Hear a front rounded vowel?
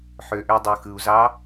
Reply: yes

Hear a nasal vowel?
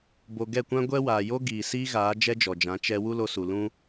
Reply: yes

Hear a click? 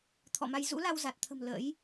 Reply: no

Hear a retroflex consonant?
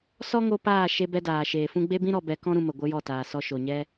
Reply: no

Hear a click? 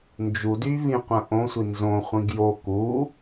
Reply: no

